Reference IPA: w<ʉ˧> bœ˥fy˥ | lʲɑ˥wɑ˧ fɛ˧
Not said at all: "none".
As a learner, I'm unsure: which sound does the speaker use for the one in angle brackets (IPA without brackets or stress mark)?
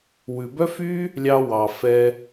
ʉ˧